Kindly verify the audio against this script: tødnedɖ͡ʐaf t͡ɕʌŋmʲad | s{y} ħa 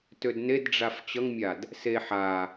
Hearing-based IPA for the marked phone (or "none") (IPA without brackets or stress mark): e